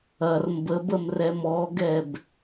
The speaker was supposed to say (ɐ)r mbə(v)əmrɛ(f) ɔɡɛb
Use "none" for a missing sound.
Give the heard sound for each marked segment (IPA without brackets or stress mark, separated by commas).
ɐ, b, m